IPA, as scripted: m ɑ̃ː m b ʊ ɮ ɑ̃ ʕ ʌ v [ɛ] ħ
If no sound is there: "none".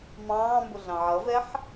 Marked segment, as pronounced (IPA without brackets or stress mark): ɛ